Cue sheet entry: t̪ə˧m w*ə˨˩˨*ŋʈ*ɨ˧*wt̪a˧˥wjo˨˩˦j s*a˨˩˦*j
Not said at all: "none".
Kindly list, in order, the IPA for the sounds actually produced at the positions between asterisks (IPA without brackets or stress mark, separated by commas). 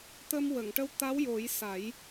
ə˨˩˨, ə˧, a˨˩˦